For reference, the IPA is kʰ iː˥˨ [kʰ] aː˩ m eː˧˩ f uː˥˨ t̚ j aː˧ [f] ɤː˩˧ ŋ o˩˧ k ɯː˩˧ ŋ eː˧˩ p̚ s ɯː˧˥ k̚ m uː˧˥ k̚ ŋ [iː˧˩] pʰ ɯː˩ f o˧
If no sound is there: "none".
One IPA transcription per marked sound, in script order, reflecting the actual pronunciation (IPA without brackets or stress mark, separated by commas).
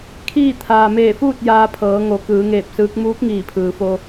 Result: t̪ʰ, pʰ, iː˧˩